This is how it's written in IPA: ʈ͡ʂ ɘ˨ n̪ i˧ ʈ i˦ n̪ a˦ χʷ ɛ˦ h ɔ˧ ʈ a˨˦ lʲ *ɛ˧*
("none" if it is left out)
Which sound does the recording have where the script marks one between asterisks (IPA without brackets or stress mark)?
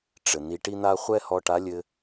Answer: ɘ˧